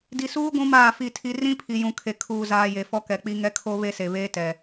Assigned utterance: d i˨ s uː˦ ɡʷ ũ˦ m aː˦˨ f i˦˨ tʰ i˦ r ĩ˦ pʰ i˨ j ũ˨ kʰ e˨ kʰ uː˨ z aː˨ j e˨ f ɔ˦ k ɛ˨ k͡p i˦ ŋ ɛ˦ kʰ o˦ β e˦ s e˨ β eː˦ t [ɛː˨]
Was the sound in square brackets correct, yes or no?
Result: no